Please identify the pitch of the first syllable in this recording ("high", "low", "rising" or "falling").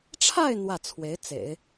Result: falling